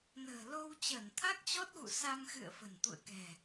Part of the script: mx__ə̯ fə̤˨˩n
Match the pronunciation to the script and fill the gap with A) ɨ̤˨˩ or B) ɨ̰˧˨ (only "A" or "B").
B